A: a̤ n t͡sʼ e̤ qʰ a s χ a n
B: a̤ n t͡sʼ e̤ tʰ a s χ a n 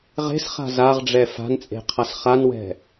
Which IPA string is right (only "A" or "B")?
A